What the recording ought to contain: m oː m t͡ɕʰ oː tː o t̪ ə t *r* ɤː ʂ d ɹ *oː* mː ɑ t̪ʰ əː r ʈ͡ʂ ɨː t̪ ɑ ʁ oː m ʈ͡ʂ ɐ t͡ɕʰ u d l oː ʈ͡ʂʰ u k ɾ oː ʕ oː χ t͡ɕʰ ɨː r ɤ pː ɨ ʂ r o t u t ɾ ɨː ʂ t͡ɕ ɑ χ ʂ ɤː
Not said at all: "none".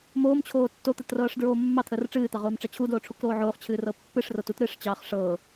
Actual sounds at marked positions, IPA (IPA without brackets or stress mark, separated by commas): r, oː